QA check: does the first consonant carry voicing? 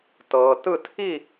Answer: no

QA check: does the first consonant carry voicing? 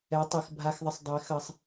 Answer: no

